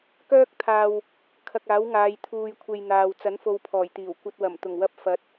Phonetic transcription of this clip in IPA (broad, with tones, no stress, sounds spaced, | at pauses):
k œː˥ k̚ t̪ʰ aː˧ w | kʰ ɐ˧ k̚ aː˨˥ w ŋ aː˨˧ j t̪ʰ uː˧ j kʷʰ e˧ j n̪ aː˨ w t͡s ɐ˨˥ n f o˨˧ w pʰ ɔː˨˩ j t̪ iː˨˩ w kʷ ɐ˧ t̚ w ɐ˨˩ m t̪ ʊ˨˩ ŋ w ɐ˧ p̚ f ɐ˨˥ t̚